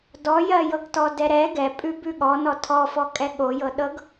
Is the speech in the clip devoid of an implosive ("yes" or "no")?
no